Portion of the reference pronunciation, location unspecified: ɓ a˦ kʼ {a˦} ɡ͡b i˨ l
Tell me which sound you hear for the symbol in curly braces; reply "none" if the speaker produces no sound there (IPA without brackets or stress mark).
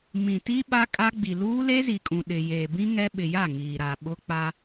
a˦